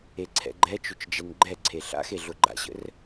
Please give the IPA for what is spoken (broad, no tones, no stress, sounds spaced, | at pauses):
e ǀʰ ɛ̰ ɡ͡ǃ ɛ t͡ʃ ʊ t͡ʃ d͡ʒ ɛ n ɡ͡ǃ ɛ ǀʰ e ɬ a̰ x e ɮ ʊ ɡ͡ǃ a̰ ɕ ə̰ r